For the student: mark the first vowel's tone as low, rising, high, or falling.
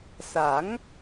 rising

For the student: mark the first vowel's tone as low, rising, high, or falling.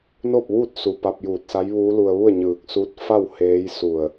falling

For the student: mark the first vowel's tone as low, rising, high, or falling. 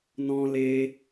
high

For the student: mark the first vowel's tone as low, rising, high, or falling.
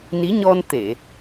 rising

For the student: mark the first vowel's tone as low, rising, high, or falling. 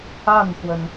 falling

